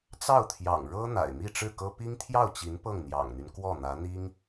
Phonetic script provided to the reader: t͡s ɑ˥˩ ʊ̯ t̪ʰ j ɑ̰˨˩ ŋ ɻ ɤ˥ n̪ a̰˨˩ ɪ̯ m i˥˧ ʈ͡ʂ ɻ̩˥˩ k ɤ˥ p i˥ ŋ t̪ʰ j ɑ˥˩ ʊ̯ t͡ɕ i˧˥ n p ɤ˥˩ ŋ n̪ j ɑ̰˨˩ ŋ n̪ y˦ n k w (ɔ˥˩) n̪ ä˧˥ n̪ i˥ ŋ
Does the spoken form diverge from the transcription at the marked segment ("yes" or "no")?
no